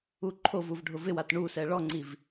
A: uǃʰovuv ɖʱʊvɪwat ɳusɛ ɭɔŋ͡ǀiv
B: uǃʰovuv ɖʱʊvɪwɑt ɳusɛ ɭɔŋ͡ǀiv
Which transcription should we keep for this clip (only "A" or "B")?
A